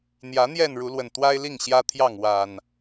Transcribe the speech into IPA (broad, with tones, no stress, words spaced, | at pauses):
n̪jä˨˦n̪jɛ˥˨n ɻu˨˦lwə˨˩nt̪wa˦ɪ̯li˥˨ŋ ɕjä˦t̪ʰjɑ˥˨ŋ wa˨˩n